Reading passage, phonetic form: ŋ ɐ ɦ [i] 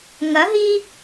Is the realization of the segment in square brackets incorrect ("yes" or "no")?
no